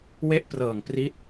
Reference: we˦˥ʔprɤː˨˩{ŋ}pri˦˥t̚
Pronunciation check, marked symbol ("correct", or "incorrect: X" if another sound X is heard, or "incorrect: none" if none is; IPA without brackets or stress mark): correct